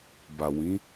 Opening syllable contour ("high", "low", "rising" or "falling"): low